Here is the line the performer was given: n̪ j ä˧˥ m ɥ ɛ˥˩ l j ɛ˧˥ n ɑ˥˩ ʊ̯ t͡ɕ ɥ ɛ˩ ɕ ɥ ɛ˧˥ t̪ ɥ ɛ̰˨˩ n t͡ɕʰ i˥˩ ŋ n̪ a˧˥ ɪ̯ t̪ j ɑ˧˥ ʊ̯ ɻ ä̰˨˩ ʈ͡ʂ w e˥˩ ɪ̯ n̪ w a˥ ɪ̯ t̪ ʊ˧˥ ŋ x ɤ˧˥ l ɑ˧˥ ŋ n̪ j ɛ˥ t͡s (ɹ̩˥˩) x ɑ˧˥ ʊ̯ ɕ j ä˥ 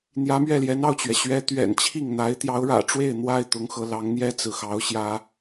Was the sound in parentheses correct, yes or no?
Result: no